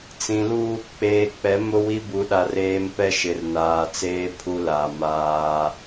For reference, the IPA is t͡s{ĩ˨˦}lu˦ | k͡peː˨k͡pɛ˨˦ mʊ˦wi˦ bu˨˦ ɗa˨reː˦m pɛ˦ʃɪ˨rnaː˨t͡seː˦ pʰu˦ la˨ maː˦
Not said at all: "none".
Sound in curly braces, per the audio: ĩ˨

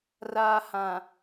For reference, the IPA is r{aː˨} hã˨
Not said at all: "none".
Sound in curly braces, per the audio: aː˨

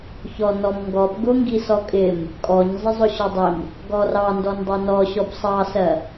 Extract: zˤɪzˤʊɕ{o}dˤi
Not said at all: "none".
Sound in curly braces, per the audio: ɔ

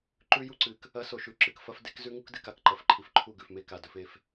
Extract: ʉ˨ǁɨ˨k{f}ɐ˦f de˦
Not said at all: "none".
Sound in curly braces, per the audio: f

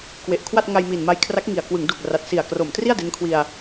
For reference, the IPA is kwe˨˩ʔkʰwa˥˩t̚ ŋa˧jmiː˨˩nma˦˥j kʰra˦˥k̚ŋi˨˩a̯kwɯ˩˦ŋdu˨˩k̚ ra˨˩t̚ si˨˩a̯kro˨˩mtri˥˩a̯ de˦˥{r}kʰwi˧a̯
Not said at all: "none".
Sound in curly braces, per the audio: n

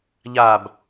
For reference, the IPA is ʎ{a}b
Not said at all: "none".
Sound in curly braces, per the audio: a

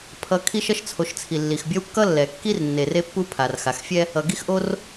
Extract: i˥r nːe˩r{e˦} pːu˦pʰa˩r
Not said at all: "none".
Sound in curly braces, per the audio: e˦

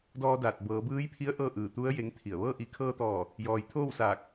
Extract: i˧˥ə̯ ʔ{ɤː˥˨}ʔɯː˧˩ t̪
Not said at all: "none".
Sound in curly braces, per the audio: ɤː˥˨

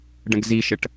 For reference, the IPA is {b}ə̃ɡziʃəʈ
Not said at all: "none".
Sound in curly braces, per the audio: ɖ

